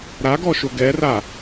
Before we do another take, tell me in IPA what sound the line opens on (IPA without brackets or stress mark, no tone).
ɾ